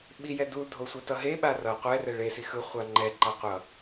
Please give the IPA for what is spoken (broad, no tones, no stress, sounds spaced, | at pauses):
ɓ i j ɛ d u dʱ o sʷ ɛ t ʌ ɦ e ɓ a r ʌ qʷ ɛ r ɛ ɭ e s i x ɯ χʷ a ŋ͡ǃ ɛ ǃ a qʷ ʌ